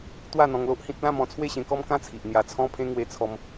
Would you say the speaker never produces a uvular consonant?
yes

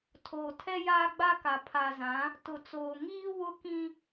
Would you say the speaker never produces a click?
yes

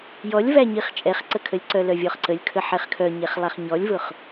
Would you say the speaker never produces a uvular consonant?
no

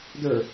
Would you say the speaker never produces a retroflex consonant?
yes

